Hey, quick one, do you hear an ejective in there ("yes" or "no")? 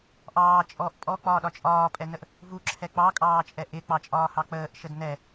yes